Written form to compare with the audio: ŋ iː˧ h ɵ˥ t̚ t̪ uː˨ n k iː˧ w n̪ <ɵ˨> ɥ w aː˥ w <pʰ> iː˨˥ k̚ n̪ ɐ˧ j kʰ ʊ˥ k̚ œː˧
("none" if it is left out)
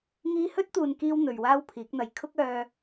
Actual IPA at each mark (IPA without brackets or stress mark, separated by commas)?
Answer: ɵ˨, pʰ